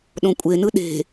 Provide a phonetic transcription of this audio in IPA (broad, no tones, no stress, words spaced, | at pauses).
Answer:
ɗõkʷʼenɯ ɗe̤